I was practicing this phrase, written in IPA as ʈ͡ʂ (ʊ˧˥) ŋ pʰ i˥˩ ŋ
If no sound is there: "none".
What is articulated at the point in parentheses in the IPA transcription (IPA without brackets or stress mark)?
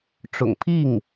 ʊ̰˨˩